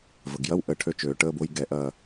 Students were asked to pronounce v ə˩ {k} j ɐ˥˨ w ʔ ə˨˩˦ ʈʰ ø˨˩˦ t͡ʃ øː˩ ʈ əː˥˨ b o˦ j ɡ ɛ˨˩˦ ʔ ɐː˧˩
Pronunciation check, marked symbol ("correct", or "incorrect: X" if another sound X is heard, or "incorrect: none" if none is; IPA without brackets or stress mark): incorrect: ɡ